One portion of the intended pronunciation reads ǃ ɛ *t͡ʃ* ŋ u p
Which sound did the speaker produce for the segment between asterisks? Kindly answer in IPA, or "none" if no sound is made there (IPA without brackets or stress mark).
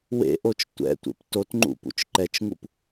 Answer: t͡ʃ